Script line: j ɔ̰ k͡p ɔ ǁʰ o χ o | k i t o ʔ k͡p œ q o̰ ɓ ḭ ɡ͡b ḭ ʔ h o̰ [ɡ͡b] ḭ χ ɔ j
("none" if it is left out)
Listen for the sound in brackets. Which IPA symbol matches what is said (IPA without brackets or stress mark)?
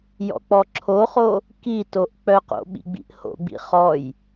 ɡ͡b